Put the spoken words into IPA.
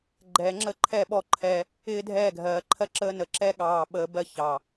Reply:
ɡ͡ǃ ɛː˨ ŋ͡ǁ əː˦ ǃʰ ɛ˦˨ ɓ ɔ˦ ǃʰ ɛ˦ | ɪː˦ dʱ ɛː˦˨ ɡʱ ɜː˨ ǃʰ ɜ˦ ǁ əː˦ n ə˨ ǁ ɛ˦ ɠ ɑː˨ ɓ əː˨ b ɜ˦ ç ɑ˨

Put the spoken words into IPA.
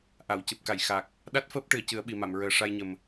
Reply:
ʔ a˨˩˨ w c ɨ˨˩ p̚ k a˨˩˨ j x a˨˩ k̚ | ɗ a˦˥ t̚ f əː˦˥ p̚ ʈ ɨ˨˩˨ ə̯ c ɨ˨˩˦ ə̯ ɓ i˨˩˨ m a˨˩˨ m ɹ əː˨˩˦ ʂ a˧ j ɲ ə˨˩ m

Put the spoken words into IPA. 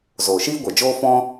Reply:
z oː˨ ʃ iː˦ ɡʷ ɛ˨ d͡ʒ oː˦ f ɔ̃˦

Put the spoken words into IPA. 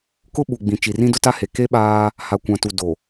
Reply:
k ʊ˦ ɓ u˨ ɡ͡b ĩ˨ t͡ʃ i˨ r ĩ˦ d ʊ˦ t a˦ h e˨ k e˦ ɓ aː˦ | h a˨ kʷ ã˨ t u˨ d o˨

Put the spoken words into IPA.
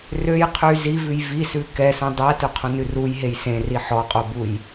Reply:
r ø j qʰ y z i v ʉ j v i s ʉ k ɛ s ũ dˤ æ t ɵ qʰ ũ n ʉ r u j ɦ e j s ẽ r i ħ ɔ qʼ o b u j

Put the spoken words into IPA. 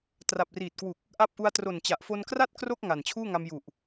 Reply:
t r a˨˩ p̚ r iː˨˩ t̚ k w u˨˩ k̚ | ʔ a˦˥ p̚ ʔ u˧ a̯ t r o˨˩ n t͡ɕ a˨˩ ʔ f o˧ n k r a˥˩ t̚ k r o˥˩ k̚ ŋ a˨˩ n t͡ɕʰ uː˥˩ ŋ a˧ m j u˨˩ ʔ

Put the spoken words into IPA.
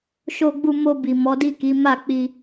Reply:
ʃ o˧ ɡ͡b u˧ m o˧ b i˨ m ɔ˨˦ d i˦˨ k i˨˦ m a˦˨ k͡p i˧

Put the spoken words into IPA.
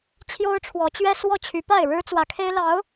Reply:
t͡ɕʰ j o˥ ʊ̯ ʈ͡ʂʰ w ɔ˧˥ t͡ɕ ɥ ɛ˥ s w ɔ˥˩ t͡ɕʰ y˧˥ p a˥˩ ɪ̯ ɻ ɻ̩˥ t͡s w ä˧˥ kʰ e˥ ɪ̯ l ɑ˧˥ ʊ̯

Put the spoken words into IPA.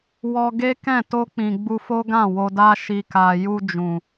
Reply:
w ɔ˧ ɡ e˦ k ɛ̃˦˨ t o˧ k͡p ĩ˨ ɡ͡b u˧ f o˦ ɡ ã˦˨ w o˧ d a˦ ʃ i˧ k a˧ j u˧ d͡ʒ ũ˨

